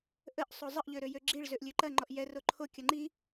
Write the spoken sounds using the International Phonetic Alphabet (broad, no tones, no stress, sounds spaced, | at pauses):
ʔ ə ʔ sˤ o zˤ ə ʔ ʎ ø ɾ ø j ø ɡ͡ǁ i ɭ z ø ʔ lʲ ø ǃ ɐ ŋ͡ǃ ɔ ʔ j ɛ r o ǃʰ o kʲ ɐ ŋ͡ǃ i